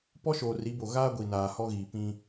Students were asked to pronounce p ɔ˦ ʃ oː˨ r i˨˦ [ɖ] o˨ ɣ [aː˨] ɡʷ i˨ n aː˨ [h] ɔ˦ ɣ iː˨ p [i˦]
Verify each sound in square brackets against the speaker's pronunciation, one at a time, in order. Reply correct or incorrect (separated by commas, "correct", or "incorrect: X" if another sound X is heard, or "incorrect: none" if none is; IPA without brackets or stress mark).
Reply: incorrect: b, incorrect: aː˦, correct, incorrect: ĩ˦